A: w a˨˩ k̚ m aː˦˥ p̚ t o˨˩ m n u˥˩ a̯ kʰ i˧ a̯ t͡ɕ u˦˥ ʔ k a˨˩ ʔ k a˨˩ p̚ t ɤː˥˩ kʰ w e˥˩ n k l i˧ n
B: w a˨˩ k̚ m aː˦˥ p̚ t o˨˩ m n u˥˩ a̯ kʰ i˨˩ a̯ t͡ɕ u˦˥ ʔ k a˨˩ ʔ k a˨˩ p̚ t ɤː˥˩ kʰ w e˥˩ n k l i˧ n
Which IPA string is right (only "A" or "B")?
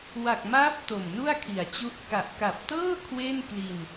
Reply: B